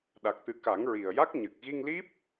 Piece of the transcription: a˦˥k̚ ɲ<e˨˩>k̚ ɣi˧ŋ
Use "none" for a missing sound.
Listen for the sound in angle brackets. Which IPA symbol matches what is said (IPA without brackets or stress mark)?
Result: ɨ˨˩